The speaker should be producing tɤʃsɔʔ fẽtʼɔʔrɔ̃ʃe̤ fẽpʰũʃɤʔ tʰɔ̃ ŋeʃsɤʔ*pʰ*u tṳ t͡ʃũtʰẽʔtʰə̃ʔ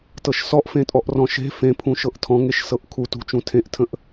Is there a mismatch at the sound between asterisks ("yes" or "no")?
yes